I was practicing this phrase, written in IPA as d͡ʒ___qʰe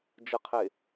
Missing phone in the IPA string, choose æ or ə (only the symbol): ə